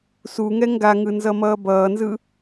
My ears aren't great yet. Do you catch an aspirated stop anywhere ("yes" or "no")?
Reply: no